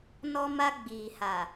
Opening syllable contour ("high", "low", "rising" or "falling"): high